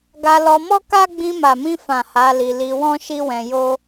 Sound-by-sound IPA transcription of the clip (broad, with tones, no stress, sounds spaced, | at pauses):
ɡ a˧ l ɔ˧ m ɔ˦ k a˦ ɡ͡b ĩ˧ m a˨ m ĩ˧ f ã˨ h a˨˦ l i˧ l i˧ w ɔ̃˦ ʃ i˦ w ɛ̃˧ j o˦